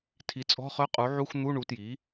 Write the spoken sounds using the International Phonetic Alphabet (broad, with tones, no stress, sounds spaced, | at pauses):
tʰ i˩˥ t͡sʼ ɔ̤˧˥˧ χ œ˧˥˧ qʼ u˩˥ ʕ u˧˥˧ x n̪ u˧˥˧ ɳ u˩˥ t j i˩˥